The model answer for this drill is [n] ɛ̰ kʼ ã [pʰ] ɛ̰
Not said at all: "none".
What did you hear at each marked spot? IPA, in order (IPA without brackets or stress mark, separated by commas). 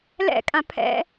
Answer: l, pʰ